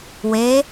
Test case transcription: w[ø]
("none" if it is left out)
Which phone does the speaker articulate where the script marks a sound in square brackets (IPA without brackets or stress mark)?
e